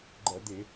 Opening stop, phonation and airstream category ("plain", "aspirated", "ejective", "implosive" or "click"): click